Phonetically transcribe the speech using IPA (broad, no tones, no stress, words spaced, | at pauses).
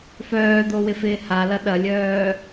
fœːd̪owɪfɪː halɐ ɗɐlʲœː